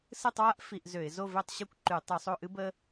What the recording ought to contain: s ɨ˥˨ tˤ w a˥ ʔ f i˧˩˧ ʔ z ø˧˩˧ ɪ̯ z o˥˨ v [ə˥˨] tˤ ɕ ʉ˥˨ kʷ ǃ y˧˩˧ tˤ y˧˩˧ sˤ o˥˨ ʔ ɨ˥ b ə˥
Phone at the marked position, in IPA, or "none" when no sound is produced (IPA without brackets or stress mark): ø˥˨